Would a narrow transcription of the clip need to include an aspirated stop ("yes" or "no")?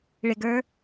no